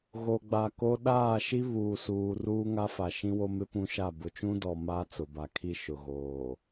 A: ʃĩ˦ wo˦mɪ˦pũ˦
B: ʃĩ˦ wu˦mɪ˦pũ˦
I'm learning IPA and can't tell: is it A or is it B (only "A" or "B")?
A